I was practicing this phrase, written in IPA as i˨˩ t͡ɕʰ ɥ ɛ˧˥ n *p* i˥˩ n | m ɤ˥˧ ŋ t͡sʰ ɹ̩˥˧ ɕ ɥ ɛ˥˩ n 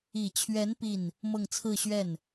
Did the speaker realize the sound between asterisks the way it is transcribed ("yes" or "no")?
yes